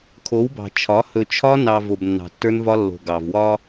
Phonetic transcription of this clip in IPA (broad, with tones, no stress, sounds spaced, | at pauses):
kʰ o˨˦ w b ɑ̤˨ t͡ʃʰ ɒ˨˦ h ɵ˨ t͡ʃʰ ɒ˧ n ɑ˨ v o˨ b nː ɑ̤˨ tː ə˞˧ n v ɒ˧ lː o̤˨ ɡ ɑ˨ v w ɒ˦